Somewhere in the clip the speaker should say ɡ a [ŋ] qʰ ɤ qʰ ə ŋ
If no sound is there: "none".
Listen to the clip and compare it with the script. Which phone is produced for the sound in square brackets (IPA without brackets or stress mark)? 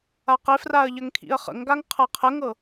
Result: ŋ